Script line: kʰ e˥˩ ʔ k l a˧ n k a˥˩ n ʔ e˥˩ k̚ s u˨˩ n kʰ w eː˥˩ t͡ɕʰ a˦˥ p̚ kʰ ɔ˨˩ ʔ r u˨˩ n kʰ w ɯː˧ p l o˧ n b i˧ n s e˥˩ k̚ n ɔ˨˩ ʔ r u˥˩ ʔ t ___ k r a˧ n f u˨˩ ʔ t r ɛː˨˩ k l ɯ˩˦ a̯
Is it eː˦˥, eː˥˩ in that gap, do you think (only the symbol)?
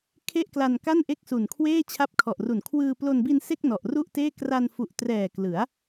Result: eː˥˩